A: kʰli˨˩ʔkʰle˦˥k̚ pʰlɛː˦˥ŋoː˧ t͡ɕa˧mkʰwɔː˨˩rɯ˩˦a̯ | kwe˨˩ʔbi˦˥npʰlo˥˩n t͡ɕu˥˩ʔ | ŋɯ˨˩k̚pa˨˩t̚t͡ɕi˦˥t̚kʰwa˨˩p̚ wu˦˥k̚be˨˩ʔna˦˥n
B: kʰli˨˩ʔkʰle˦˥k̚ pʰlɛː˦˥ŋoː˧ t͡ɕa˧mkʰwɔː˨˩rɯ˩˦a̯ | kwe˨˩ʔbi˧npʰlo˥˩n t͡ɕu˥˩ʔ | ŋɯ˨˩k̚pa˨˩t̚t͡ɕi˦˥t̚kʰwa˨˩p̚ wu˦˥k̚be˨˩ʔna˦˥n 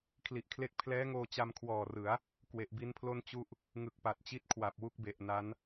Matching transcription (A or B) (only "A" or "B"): A